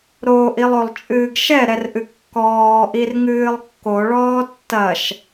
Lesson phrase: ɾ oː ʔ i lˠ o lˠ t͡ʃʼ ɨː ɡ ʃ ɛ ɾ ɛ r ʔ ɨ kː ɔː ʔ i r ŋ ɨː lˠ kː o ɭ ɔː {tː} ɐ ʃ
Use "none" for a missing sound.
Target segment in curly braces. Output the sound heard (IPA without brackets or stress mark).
tː